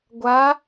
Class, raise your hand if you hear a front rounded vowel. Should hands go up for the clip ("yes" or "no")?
no